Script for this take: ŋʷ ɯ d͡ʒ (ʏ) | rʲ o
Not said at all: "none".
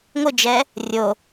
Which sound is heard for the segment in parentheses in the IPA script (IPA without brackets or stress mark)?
ɛ